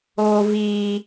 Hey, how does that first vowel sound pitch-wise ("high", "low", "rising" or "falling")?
high